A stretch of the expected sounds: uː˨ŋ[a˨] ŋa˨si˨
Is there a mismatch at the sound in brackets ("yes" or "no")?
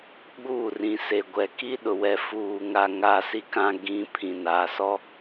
no